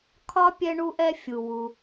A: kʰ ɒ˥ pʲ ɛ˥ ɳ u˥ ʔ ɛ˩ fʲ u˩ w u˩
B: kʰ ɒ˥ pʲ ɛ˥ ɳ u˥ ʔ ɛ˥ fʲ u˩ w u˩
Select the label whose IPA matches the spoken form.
B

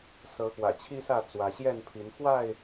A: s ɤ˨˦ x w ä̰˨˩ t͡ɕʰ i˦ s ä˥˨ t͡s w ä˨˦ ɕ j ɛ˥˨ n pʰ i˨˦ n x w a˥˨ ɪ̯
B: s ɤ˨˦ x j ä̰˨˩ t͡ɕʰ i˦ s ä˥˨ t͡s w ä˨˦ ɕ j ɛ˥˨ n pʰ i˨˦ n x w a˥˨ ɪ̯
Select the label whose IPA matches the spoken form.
A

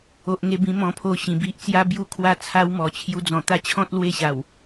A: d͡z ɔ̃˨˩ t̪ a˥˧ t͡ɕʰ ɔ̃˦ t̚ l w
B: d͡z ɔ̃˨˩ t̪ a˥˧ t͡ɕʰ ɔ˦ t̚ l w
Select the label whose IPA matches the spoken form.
A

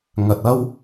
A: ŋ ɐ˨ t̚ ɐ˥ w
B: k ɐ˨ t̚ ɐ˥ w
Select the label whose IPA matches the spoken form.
A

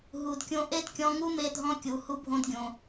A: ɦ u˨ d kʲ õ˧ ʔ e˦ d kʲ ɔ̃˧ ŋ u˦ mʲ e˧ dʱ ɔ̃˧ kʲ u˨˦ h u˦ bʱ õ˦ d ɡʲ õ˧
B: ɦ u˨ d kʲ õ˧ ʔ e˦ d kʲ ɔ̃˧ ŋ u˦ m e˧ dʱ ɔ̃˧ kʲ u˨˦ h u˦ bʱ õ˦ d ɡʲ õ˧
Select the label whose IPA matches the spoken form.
B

